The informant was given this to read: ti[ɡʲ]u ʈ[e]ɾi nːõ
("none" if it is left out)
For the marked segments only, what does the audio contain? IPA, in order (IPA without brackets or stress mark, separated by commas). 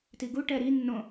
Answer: ɡ, ɛ